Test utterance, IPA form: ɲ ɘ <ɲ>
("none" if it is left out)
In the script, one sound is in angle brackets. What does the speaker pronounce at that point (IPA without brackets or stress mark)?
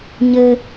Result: none